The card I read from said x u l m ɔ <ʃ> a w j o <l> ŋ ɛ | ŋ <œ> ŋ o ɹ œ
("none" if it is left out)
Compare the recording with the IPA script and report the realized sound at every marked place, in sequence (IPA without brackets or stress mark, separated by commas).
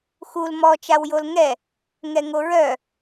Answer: t͡ʃ, l, ɛ